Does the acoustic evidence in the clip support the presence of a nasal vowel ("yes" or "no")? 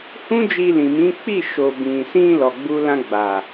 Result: yes